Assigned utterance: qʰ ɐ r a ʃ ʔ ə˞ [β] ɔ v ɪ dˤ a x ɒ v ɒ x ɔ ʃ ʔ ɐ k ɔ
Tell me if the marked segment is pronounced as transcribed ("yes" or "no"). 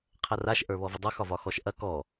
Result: yes